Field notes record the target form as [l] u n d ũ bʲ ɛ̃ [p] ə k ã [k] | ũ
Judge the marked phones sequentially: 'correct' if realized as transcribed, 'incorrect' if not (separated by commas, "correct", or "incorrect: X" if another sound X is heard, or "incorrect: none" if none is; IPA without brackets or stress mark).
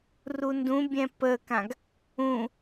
incorrect: r, correct, incorrect: ɡ